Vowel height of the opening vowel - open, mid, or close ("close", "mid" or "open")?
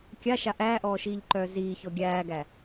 open